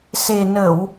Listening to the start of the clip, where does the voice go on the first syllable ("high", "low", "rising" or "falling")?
low